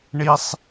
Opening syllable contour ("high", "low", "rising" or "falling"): high